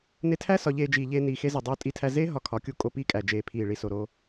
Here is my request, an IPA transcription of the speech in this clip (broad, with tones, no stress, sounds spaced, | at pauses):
n e˧ tʰ æ˦ s ɒ˧ ʎ eː˧ d͡ʒ iː˧ ʎ eː˦ n iː˧ x e˦ z i˨ dˤ oː˧ tʼ i˧ tʰ æ˧ z eː˦ ɦ ɒ˧ kʰ ɒ˨˦ kʲ u˧ kʼ o˧ p iː˧ kʼ æ˨ d͡ʒ eː˨ pʰ iː˨ ɭ i˨ s o˨ ɾ o˧